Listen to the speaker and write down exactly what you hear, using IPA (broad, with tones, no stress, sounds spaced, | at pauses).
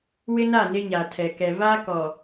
w ɪ˦ n a˦˨ n ɪ˦ ɲ a˨ tʰ ɛ˨ k ɛ˨ v aː˦ k ɔ˨